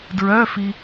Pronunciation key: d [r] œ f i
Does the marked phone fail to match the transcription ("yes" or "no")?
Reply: yes